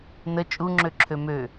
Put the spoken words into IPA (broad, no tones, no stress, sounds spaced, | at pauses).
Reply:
n ə t͡ʃʼ u ŋ͡ǁ ø ǁʰ ø m ø